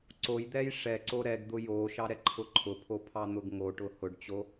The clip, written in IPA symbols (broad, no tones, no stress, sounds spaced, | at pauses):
ǀ o j d̪ ɛ j ʂ ɛ ǀ o ɾ ɛ ɡ d̪ ʊ j o ʃ ɑ ɾ ɛ ǃʰ ʊ ǃʰ ʊ pʰ o pʰ ɑ n̪ ʊ ɡ ŋ o ʈ ʊ h ʊ ɖ t͡ɕ o